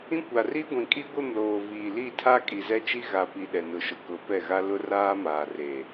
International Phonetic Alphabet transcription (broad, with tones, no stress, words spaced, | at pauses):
ĩ˦kʷa˨ri˦ ɡʷĩ˨kʼi˦ɡʷɪ˦˨mloː˨ viː˨li˦˨tʰa˦ kʼi˨zɛ˦t͡ʃi˦ɣa˨ pi˨ ɗɛ˨nʊ˨ʃʊ˨ kʊ˨˦pɛ˦˨ɣa˦ lʊ˦raː˦ maː˨reː˨